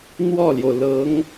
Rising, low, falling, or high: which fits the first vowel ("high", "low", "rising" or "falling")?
falling